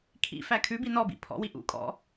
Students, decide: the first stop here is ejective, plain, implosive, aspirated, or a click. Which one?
aspirated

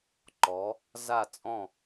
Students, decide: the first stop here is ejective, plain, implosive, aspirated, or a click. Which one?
click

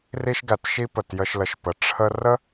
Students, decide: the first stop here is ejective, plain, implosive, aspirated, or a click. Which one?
plain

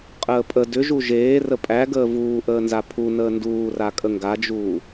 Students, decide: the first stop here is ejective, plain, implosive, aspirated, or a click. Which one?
ejective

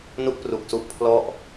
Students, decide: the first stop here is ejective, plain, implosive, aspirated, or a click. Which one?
plain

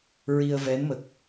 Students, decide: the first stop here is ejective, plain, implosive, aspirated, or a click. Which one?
plain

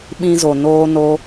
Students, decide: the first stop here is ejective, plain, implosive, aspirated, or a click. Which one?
implosive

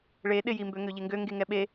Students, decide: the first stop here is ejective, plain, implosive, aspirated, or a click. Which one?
implosive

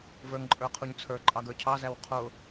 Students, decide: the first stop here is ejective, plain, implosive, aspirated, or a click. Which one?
click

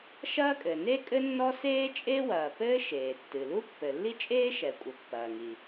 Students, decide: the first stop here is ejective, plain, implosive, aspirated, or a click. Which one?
ejective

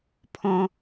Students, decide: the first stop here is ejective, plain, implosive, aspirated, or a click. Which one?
aspirated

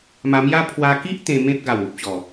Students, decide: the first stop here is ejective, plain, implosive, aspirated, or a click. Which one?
aspirated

